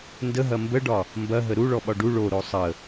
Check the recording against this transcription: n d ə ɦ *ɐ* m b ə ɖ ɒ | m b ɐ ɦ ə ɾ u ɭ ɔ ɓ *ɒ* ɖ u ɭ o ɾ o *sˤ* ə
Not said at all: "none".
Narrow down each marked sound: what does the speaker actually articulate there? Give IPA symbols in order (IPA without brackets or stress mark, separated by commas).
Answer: ɐ, ɒ, sˤ